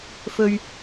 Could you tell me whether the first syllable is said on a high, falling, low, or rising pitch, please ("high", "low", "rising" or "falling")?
low